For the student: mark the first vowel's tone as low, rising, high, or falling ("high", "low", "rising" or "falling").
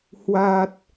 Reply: low